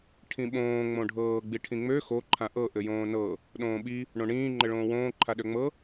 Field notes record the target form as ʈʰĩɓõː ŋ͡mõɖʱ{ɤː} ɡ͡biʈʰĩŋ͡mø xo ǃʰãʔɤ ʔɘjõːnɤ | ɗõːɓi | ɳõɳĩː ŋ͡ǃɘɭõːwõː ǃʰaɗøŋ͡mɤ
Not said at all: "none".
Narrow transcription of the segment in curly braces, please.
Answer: ɤː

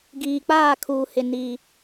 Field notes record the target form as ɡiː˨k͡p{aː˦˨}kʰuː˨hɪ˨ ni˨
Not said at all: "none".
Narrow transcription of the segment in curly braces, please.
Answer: aː˦˨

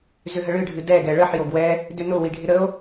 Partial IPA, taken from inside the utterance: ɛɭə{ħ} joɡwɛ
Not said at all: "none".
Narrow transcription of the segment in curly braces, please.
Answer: ħ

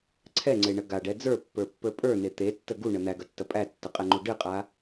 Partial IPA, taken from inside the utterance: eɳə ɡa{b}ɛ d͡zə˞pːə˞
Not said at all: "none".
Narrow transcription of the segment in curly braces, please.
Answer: ɖ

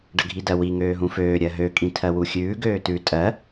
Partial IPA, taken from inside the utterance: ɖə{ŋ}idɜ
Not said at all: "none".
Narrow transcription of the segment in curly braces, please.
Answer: ɡʱ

